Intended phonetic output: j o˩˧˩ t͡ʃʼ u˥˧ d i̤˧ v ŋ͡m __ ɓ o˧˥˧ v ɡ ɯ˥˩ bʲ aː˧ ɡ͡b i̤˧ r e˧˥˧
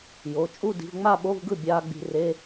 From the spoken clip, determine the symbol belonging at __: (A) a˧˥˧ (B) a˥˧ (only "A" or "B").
B